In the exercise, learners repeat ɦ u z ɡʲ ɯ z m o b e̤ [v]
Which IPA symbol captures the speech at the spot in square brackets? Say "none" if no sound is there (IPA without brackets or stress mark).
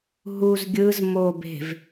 v